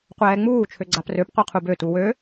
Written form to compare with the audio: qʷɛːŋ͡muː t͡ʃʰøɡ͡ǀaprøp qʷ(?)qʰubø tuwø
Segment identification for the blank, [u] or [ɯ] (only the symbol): ɯ